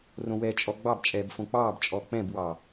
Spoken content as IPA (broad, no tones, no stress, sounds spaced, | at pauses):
r õ w ɛ t͡ʃʼ ɔ ɡ͡b ɑ b t͡ʃʼ ɛː b f õ k͡p ɑː b t͡ʃʼ ɔ k͡p ɛ̃ b w ɑː